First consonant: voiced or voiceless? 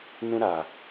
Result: voiced